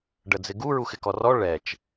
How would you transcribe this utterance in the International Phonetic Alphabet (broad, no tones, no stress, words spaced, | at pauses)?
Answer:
ɖəd͡zɪɡu ɹuxɪkɔrɔ ɭɛt͡ʃ